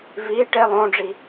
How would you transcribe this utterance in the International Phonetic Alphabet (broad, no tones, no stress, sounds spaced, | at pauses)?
v i ʈ e lˠ õ ɖ͡ʐ i